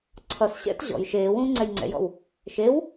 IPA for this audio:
ǀʰ ʌ s ɕ ɛ̰ t ʑ ɔ̰ j ʃ eː w ũː ŋ͡ǀ ɛ j ŋ͡ǀ ɛ̰ j ɔ̰ w | ʃ e w

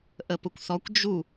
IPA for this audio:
ʔ ə p ʊ kʷ θ ɔ kʷ d͡ʒ u

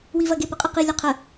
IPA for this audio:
w i v ɐ ɡ e p ə qʼ ɪ q i lʲ ɛ qʰ ə

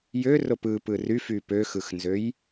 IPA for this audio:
j ø r o p ɯ p ɯ r y f y p ø x ɯ x n z ø j

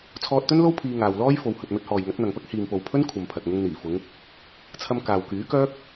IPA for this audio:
t͡sʰ ɔː˧ t̚ t̪ ɵ˥ n l o˥ w pʰ iː˧ ŋ aː˨ w l ɔː˥ j f o˨ w h ɵ˨ t̚ m ɵ˧ t̚ h ɔː˨ j ŋ ɐ˨˥ t̚ n̪ ɐ˨ ŋ p ɐ˥ k̚ h iː˨ m p o˨ w pʰ ɵ˥ n kʷʰ ɐ˨ m pʰ ɐ˨ t̚ ŋ ʊ˧ ŋ n̪ iː˨˩ f ʊ˨˧ ŋ | t͡sʰ ɐ˧ m k aː˨ w k yː˨˥ k œː˥ k̚

